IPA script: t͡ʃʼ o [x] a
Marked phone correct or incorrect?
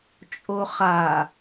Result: incorrect